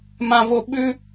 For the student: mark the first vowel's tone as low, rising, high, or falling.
high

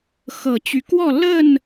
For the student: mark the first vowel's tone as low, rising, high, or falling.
low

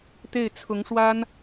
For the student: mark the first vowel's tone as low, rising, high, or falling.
falling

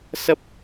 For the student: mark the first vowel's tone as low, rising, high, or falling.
high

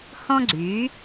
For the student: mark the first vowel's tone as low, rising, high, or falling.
high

